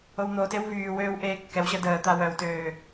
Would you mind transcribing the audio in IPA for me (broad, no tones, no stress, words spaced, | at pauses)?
own̪otew vyːwøːw ʔeːkːɛwɕə dəː t̪awœwtøː